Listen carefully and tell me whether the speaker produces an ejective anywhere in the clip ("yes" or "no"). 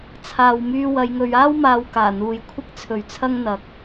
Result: no